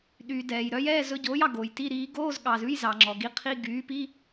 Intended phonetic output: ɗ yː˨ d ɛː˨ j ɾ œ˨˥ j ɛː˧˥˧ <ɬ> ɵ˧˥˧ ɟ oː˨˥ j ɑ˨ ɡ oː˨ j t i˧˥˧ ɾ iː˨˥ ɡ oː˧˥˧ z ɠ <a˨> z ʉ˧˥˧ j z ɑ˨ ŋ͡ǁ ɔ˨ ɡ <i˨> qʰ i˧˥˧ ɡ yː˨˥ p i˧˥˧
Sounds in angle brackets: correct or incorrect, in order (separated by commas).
incorrect, incorrect, incorrect